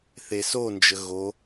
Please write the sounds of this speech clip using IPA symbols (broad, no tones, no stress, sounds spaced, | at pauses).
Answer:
θ e s o n d͡ʒ ə ɣ o